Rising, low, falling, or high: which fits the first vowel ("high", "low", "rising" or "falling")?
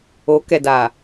rising